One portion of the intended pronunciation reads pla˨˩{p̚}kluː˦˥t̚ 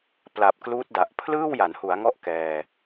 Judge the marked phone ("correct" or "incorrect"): correct